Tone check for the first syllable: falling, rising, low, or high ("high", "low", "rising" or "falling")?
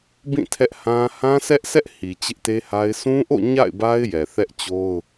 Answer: falling